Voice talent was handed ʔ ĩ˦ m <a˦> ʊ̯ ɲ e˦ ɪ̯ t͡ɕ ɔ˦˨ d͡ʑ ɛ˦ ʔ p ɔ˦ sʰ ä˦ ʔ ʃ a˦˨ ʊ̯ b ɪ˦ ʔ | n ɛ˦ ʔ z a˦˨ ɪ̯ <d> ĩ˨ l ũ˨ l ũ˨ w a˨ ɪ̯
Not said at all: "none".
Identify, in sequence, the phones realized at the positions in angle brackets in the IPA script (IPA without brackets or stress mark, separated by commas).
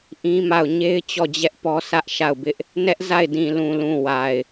a˦˨, d